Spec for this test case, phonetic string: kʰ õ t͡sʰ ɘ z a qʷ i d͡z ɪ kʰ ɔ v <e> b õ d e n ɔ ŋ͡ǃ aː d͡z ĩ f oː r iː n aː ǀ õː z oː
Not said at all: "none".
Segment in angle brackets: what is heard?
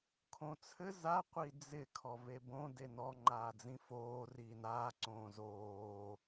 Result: e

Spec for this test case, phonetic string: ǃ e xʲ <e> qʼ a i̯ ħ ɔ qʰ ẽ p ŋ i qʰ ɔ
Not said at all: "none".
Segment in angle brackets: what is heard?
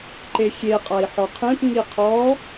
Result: e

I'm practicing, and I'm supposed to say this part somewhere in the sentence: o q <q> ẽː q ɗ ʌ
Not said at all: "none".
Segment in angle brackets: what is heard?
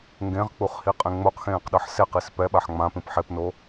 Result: x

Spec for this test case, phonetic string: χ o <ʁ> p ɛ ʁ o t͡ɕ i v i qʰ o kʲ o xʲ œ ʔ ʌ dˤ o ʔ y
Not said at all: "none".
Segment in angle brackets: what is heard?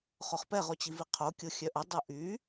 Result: χ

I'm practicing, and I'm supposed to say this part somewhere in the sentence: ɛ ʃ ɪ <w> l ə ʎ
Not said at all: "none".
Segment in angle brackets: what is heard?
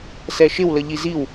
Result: w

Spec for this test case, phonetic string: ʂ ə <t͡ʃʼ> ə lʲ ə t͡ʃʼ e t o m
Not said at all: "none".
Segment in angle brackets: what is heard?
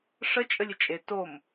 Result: t͡ʃʼ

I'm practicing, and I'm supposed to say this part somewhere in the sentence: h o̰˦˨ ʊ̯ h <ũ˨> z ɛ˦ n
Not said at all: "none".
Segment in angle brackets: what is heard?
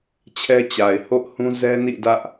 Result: ũ˦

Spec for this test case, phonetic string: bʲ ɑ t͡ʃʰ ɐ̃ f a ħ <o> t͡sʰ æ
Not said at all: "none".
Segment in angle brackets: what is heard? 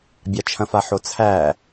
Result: o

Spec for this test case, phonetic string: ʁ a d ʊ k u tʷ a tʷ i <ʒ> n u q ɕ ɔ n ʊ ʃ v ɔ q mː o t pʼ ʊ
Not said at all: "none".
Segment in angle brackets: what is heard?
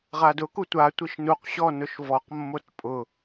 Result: ʃ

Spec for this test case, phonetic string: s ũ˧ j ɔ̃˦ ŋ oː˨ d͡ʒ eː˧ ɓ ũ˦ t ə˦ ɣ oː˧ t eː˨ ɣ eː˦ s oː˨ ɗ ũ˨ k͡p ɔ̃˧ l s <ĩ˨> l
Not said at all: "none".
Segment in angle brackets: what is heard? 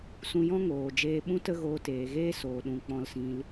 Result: ĩ˧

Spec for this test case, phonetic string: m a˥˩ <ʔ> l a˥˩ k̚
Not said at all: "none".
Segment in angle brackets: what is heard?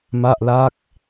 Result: ʔ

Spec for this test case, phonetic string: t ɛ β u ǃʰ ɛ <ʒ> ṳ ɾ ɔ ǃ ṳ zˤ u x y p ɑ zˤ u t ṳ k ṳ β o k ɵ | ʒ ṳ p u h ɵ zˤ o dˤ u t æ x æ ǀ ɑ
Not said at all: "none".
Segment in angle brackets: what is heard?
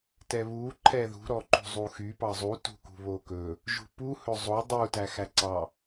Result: ð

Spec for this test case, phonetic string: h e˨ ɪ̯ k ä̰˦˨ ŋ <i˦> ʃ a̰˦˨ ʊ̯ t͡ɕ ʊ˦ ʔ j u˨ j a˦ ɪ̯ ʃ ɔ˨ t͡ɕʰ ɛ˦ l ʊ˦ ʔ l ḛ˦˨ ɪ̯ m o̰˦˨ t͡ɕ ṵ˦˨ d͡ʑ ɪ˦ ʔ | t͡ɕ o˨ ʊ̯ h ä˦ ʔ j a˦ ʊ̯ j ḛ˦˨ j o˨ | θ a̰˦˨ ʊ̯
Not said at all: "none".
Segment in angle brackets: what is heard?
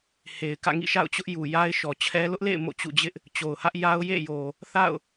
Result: ḭ˦˨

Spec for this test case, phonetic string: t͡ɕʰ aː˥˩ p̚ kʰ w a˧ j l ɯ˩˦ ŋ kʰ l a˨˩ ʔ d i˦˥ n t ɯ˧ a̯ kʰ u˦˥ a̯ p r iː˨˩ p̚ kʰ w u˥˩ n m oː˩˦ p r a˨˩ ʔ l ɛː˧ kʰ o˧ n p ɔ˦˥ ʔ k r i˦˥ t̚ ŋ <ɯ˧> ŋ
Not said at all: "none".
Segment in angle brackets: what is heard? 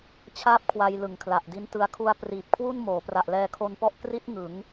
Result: ɯ˩˦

